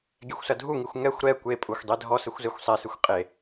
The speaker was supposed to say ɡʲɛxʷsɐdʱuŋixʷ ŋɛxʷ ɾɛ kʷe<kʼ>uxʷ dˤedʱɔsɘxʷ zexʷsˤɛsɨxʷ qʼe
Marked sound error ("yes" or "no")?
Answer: yes